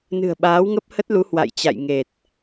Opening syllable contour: low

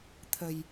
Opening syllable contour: low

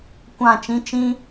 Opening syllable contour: falling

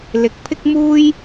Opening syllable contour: rising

